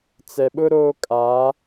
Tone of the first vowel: low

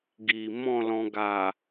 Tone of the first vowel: low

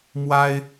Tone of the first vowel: high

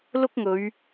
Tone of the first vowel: high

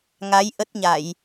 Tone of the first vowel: rising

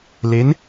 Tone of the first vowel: rising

